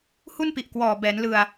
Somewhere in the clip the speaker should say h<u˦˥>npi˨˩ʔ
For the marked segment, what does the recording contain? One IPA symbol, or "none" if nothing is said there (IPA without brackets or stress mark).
u˥˩